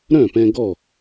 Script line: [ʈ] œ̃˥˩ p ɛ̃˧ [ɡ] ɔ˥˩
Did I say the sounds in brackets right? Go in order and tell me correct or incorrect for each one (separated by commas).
incorrect, correct